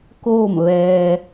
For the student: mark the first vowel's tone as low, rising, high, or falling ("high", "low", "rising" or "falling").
falling